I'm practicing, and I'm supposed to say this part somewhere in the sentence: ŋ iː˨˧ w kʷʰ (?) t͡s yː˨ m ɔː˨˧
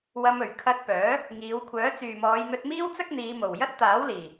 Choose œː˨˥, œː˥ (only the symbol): œː˨˥